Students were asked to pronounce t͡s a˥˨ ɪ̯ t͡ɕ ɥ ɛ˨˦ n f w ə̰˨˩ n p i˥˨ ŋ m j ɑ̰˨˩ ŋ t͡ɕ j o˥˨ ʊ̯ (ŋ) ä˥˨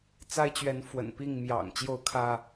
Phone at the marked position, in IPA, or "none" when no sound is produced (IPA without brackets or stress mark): kʰ